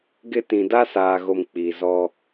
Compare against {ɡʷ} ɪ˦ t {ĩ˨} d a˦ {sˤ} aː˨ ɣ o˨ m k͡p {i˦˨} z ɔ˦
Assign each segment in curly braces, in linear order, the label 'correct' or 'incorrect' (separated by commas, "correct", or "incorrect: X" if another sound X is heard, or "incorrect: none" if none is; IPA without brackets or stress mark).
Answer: incorrect: ɡ, correct, incorrect: s, incorrect: i˨